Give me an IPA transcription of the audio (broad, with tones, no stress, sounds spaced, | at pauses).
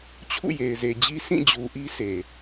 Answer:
t͡ɕʰ ṵ˦˨ j e˨ ɪ̯ z e˨ d͡ʑ i˦ sʰ ĩ˦˨ d͡ʑ u˨ ʔ i˦ s e˨